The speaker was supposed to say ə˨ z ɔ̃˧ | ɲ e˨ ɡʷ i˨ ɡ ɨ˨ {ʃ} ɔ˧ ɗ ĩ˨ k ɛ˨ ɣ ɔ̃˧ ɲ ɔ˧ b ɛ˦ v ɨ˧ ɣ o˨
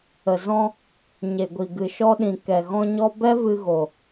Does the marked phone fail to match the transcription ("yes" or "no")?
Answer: no